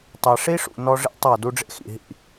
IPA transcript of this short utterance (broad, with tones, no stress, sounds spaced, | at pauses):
tˤ ɛ˨ ʂ i˦ ʂ ṵ˨ n ɔ˦ ʐ ḭ˦ tˤ ɤ˦˨ d u˦ ɖ͡ʐ ḛ˦ x ḭ˨ ɦ ḭ˦˨